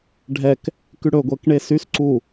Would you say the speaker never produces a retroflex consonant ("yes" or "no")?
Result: no